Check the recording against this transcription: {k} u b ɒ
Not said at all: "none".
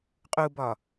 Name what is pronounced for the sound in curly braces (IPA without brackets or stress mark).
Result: qʼ